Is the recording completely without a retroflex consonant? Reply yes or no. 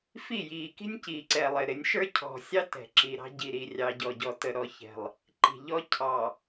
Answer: yes